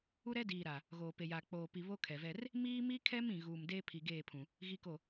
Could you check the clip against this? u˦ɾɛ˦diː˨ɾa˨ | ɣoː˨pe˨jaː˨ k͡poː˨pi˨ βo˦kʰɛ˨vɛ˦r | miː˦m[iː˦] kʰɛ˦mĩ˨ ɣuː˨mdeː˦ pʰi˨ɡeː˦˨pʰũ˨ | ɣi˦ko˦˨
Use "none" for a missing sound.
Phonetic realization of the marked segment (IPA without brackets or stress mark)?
i˦